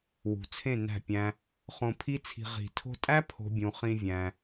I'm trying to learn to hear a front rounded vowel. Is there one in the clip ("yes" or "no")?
no